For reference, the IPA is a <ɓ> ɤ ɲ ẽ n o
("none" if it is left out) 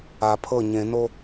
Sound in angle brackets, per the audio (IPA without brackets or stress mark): pʰ